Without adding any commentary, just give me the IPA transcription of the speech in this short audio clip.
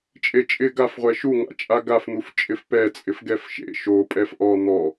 t͡ʃʼ e t͡ʃʼ ɪ ɡ a f ʁʷ ɛ ʃ u ŋ a̰ t͡ʃʼ a ɡ a f n̪ u f t͡ʃʼ ɪ f p ɛ t͡sʼ ɪ f ɡ ɛ f ʃ ḛ ʃ o pʼ ɛ f ʔ ɔ n̪ ɔ

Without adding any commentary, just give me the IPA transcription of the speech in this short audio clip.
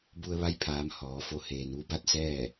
b u˧ ə̯ ʋ a˧ j pʰ aː˩˧ m h ɔː˩˧ f o˧ h eː˩ n ʋ u˧˥ b a˥˨ t̚ s ɛː˥˨

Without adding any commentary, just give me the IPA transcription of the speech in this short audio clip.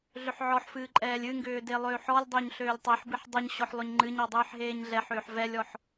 ɮ ʏ ħ ʕ ɔ ħ f ɨː ǃʼ ɛː lʲ ɨ ŋ ɡ ʏː d e lˠ øː ħ ɔ lʲ dˤ ʏː ɲ ɬ øː lʲ tˤ e ħ b ɨ ħ dˤ ɨ ɲ ɕ ɔ ħ lˠ ʏ ɲ ŋ͡ǃ ɨ ɲ ɔ dˤ ɨː ħ ɦ eː ɲ ɮ ɛ ħ ʏː ħ v ɛ lʲ ɔ ħ

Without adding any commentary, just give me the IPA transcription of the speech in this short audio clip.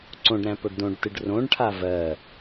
ǀ õ ɖ ɾ æ̃ p o ɖ d õ ɖ t ɨ ɖ r õ ɖ ʈʰ a v ɜ

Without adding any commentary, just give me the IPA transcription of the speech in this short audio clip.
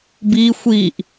b i xʷ i ʔ

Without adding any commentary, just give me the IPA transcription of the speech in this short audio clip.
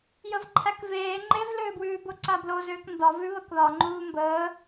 j ə v ǃʰ æ k v eː ŋ͡ǃ e v l ʏː b w ʉː b o ǀ a b l o z ʏː k n d ɒ v ʉ β ə k ð ɒ ŋ͡ǃ uː m b əː

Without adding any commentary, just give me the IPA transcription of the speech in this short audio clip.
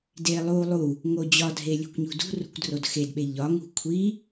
d e lˠ u lˠ u | ŋ o d͡ʑ ɒ dʱ e lʲ o̤ kʷ ɲ ṳ d ṳ r ṳ kʷ d r o d x e d ɓ e ʎ ɒ ŋ ṳ kʷʰ i

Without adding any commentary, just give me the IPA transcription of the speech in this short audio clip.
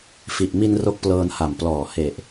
f i˨˩ ʔ m i˧ n r o˥˩ k̚ p l ɤː˧ n h a˨˩ m p l ɔː˨˩ h e˨˩ ʔ

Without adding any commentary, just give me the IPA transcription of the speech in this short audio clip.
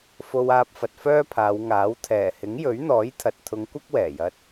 f o˧ w aː˧ p̚ f ɐ˨ t̚ f œː˥ pʰ aː˨˧ w ŋ aː˨˥ w t̪ʰ ɛː˨˩ h ɪ˨˥ ŋ j ɵ˨˥ ɥ n̪ ɔː˨˥ j t̪ʰ ɐ˨ t̚ t̪ʰ ʊ˨˧ ŋ kʷ ɐ˥ k̚ w ɛː˨˩ j ɐ˧ t̚

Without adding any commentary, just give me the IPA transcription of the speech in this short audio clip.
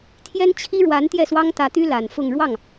t̪ʰ j ɛ˥ n t͡ɕʰ i˥ ɻ w a˧˥ n t̪ j ɛ˥˩ s w ɑ˥ ŋ t̪ ä˧˥ t̪ y˥ l a˨˩ n f ʊ˥˧ ŋ ɻ w ɑ˥˩ ŋ

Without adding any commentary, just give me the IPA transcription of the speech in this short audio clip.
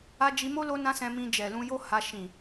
a˧ d͡ʒ i˧ m o˦ l o˦ n ã˦ s ɛ̃˧ m ĩ˧ d͡ʒ ɛ˨ l ũ˧ j o˦ h a˧ ʃ ĩ˨

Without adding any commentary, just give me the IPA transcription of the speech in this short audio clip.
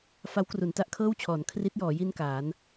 f a˦˥ w k r u˩˦ n t a˦˥ ʔ kʰ ɤː˥˩ w t͡ɕʰ ɔː˩˦ n kʰ r i˦˥ t̚ j ɔː˩˦ j i˥˩ n k aː˩˦ n

